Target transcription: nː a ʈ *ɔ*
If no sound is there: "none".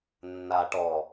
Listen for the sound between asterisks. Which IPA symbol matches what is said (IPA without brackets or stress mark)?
ɔ